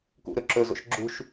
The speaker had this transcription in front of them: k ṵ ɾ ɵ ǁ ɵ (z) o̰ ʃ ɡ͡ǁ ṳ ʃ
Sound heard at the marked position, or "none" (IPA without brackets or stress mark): z